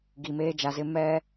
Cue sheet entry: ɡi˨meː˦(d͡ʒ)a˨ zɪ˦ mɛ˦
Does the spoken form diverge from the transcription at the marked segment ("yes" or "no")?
no